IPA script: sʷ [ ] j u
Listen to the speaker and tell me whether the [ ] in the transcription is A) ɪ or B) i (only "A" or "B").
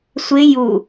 A